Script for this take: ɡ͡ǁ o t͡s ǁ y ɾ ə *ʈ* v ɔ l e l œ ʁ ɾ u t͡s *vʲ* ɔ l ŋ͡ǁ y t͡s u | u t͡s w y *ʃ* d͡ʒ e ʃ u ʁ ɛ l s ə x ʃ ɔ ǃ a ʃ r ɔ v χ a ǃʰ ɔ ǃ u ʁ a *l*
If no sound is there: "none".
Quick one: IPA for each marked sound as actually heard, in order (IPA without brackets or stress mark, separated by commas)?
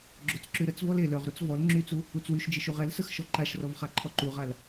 t͡s, v, ʃ, l